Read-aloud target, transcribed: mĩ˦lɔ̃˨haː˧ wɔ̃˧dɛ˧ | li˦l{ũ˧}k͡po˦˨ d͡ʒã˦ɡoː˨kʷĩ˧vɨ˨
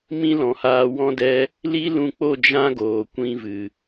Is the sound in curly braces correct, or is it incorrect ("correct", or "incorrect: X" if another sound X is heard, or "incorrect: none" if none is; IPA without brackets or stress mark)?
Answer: correct